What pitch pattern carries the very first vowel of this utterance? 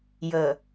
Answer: low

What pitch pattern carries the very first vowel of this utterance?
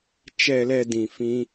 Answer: low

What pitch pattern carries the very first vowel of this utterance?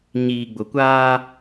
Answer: low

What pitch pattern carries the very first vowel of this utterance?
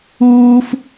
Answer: high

